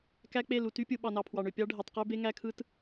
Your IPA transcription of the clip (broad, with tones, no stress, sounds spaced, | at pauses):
k æ˦ k͡p e˦˨ l u˨ t y˦ pʲ ɯ˨ ɓ ɑ˨ n ɑ˨ pʰ w ɑ˨ ɳ ø˨ pʲ ɑ˦ ɖʱ e˨ tˤ q ø˦ b e˦ ŋ æ˦ kʰ ɯ˦ t